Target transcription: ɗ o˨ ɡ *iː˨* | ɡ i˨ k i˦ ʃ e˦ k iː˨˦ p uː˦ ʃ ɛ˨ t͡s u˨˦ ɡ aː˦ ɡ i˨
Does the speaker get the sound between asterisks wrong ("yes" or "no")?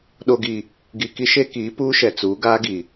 yes